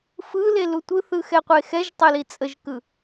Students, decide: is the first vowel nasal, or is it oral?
oral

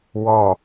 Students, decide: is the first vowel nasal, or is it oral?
oral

